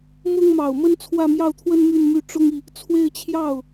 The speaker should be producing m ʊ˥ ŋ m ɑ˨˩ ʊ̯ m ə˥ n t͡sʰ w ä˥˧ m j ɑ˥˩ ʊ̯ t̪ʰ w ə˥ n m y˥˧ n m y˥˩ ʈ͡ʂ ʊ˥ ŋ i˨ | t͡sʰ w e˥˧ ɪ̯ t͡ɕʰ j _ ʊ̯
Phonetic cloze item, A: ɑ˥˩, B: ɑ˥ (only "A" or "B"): A